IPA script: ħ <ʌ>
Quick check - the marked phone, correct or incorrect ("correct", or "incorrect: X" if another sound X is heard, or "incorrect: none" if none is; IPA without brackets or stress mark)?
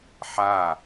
incorrect: a